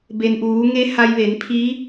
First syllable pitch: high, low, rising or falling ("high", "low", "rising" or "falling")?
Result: low